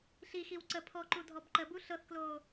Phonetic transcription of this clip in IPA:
ɬ i x i w ǀ ə pʰ ɔ ǃ u dʱ ɔ b ǃ ə b u ɬ ɤ θ k l oː

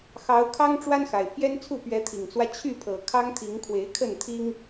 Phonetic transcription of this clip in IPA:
x ɑ˨˦ ʊ̯ kʰ ɑ˦ ŋ ʈ͡ʂ w a˦ n x a˨˩ ɪ̯ pʰ j ɛ˦ n t͡sʰ u˥˨ p ɥ ɛ˨˦ t̪ʰ i˨˩ ŋ t͡s w ä˦ t͡ɕʰ y˥˨ pʰ ɤ˨˩ kʰ ɑ˦ ŋ t̪ʰ i˨˦ ŋ kʰ w e˨˦ ɪ̯ kʰ ə˥˨ n t̪ʰ i˦ ŋ

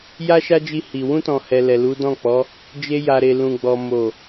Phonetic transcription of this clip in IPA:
j a˦ ʃ a˦ d͡ʒ i˧ h i˨ w ũ˧ t ɔ̃˨ h ɛ˨ l ɛ˨ l u˨˦ d ɔ̃˦˨ k͡p ɔ˨˦ | d͡ʒ e˧ j a˨ ɾ e˨ l ũ˨ ɡ͡b ɔ˨ m o˨

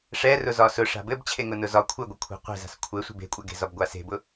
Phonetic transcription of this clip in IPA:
ʂ ɛ r ʊ z ɒ s ʊ ʂ a̤ b ɘ b t͡ɕʰ e ŋ ʊ n ʊ z ɒ kʷʰ ɘ ɡʷ ɘ kʷʰ e̤ qʷ e̤ z a̤ s kʷʰ ɘ sʷ e̤ b e̤ kʷʼ a ɡ e̤ z ɒ b ɡʷ a s e̤ b ʊ

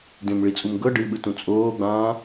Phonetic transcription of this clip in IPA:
d ẽ m ɭ i t͡sʼ u m ɡ ɤ ɖ ɨ ɓ ɯ t ũ t͡sʼ oː ɡ͡b ãː

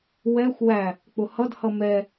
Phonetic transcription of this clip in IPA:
w ɛ xʷ w æ | k͡p ʊ h ʌ d h ʌ m ɛ

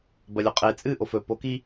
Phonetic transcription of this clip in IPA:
b ɐ lʲ o qʼ e t͡sʼ ɨ ʔ o f ɵ p o k i

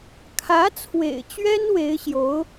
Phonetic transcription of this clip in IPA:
kʰ ä˧˥ t͡sʰ w ḛ˨˩ ɪ̯ t͡ɕ ɥ ɛ˥ n w e˧˥ ɪ̯ ɕ j o˧˥ ʊ̯

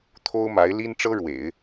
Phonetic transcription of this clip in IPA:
t̪ʰ o˥ ʊ̯ m a˧˥ ɪ̯ l i˥ n ʈ͡ʂ ɤ˥ ɻ w ḛ˨˩˦ ɪ̯

